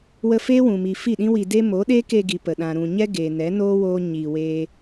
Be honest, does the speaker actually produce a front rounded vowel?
no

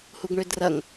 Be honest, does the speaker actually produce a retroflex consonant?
yes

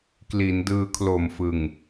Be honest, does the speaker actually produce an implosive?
no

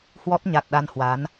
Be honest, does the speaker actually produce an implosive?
yes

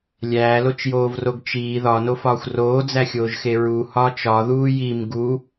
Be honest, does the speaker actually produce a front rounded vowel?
no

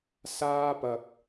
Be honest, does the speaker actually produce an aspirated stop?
no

